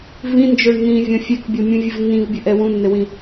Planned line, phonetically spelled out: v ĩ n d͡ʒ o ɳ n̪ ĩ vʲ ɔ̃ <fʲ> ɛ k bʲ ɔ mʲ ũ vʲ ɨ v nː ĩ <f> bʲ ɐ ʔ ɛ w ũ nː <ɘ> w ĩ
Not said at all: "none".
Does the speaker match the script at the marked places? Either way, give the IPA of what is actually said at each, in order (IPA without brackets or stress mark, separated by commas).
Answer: fʲ, v, ɘ